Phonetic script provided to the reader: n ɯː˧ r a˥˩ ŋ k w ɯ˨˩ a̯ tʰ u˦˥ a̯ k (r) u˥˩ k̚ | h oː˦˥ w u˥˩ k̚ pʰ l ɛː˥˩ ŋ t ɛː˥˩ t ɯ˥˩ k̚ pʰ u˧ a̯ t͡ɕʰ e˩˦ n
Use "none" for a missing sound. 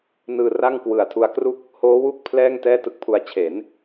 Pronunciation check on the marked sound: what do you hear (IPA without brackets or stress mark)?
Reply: r